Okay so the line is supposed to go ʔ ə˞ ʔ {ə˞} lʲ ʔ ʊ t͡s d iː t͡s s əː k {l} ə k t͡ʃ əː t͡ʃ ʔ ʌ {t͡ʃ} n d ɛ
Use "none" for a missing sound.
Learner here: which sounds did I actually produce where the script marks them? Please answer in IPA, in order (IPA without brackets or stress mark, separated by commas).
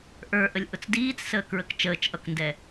ə, ɹ, k